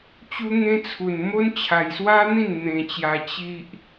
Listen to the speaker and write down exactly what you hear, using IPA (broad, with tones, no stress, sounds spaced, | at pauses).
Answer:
t͡ɕ u˦ ŋ ẽ˦ t͡sʰ u˧ n m o˦ n t͡ɕʰ a˧ j s w a˦ n̪ ĩ˥˧ n n̪ ẽ˧ t͡ɕ j a˧ t͡ɕ i˦ ʔ